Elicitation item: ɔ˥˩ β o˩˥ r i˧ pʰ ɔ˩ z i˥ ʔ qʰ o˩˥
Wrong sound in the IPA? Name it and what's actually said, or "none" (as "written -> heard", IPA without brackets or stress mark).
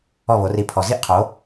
none